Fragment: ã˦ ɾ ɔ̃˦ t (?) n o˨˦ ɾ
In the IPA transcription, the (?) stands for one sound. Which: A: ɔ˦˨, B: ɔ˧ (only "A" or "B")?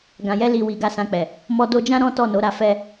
A